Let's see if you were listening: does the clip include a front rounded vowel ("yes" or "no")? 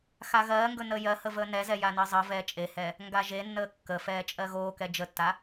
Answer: no